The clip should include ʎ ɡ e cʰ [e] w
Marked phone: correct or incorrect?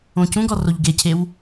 correct